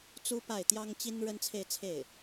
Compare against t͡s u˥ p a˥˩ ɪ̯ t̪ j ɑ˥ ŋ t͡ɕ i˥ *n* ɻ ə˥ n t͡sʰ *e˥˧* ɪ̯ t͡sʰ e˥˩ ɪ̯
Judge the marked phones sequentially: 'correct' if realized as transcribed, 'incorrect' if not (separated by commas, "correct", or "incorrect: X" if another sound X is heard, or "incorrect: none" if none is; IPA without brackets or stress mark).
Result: correct, correct